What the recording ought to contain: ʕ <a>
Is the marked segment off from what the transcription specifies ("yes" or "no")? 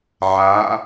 no